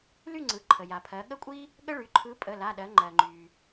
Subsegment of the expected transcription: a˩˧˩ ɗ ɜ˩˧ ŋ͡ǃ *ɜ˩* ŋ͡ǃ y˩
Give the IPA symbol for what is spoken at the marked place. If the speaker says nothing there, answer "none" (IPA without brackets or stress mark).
ɜ˩